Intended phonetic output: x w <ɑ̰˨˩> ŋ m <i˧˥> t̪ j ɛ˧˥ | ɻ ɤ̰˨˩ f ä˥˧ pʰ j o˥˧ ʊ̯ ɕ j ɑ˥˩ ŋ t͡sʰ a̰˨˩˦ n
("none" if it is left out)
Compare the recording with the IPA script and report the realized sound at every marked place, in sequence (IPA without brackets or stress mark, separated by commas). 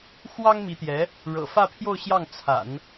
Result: ɑ˥, i˧˥